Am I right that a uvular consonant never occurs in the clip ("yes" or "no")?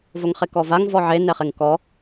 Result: no